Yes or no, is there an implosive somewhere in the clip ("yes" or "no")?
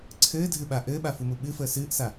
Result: yes